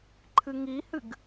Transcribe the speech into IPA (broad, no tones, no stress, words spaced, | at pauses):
ǃʰɨŋihɨɡ